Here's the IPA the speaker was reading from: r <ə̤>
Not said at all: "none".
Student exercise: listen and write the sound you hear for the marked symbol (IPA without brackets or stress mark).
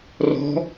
ɔ̤